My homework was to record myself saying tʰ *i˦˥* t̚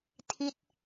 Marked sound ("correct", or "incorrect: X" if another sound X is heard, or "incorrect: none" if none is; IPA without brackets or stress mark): correct